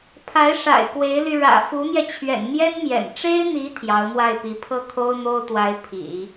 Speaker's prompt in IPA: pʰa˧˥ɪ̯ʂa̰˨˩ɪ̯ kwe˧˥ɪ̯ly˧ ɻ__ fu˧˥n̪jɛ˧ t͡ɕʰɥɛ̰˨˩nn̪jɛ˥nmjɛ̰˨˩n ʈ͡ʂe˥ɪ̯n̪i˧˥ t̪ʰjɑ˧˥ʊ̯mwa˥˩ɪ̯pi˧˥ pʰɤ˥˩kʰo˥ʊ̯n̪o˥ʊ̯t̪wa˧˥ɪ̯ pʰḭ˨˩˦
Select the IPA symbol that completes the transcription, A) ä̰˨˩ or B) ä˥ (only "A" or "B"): A